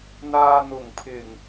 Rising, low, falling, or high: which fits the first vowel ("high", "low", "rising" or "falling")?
low